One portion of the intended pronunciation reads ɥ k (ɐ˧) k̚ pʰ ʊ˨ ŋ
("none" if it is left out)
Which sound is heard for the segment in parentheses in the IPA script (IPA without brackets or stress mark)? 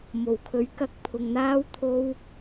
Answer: ɐ˧